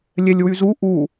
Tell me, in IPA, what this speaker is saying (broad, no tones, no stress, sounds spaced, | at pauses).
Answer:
lʲ ɛ lʲ w y z u ʔ u